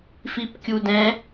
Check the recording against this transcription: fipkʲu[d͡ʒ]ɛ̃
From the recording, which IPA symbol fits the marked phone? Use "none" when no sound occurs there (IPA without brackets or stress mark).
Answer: d